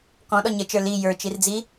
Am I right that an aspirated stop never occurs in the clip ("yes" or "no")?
yes